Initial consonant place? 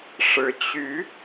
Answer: retroflex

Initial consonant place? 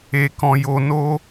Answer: velar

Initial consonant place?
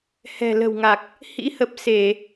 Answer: glottal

